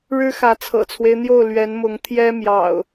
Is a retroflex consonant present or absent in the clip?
present